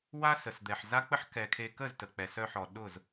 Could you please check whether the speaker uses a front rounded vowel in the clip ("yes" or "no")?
yes